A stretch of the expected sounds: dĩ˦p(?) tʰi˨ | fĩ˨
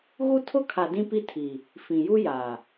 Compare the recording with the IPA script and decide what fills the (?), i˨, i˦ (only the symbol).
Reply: i˦